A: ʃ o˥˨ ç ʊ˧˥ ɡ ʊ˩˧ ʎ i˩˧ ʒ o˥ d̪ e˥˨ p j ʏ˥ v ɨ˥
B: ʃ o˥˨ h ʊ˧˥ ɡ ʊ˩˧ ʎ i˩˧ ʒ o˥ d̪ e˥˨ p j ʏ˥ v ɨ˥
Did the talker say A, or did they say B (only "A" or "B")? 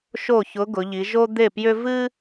A